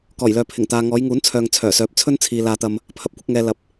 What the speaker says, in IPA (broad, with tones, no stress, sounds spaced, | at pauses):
k ɔː˨˩ j l œː˨ pʰ ɪ˨˩ ŋ t̪ aː˨ ŋ ɔː˨˧ j ŋ uː˨˥ n t͡sʰ œː˨ ŋ t͡sʰ œː˨˩ s œː˨˥ p̚ t͡sʰ ɵ˥ n t͡sʰ iː˨ l aː˧ t̪ ɐ˧ m | pʰ ɐ˨ p̚ kʷ ɪ˧ k̚ ŋ ɛː˨ l ɐ˨˥ p̚